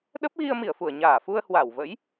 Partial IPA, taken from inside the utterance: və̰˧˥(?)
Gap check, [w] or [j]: j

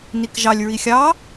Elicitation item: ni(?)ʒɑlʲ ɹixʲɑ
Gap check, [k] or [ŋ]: k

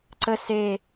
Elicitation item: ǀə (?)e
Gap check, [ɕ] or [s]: s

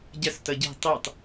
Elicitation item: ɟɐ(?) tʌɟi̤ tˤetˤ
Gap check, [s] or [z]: s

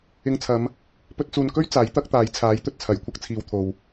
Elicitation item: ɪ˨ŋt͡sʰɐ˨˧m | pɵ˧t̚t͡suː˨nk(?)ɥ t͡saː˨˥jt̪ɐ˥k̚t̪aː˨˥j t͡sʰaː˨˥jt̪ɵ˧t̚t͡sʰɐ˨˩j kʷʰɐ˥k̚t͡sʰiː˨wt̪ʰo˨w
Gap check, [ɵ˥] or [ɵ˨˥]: ɵ˥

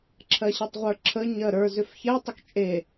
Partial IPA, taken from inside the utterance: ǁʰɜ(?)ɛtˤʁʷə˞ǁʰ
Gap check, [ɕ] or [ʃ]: ɕ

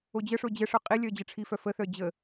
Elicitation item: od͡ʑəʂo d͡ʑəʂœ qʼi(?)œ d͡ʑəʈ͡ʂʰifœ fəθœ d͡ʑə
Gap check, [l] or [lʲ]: lʲ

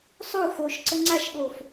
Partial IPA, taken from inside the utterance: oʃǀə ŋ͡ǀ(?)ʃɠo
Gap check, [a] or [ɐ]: a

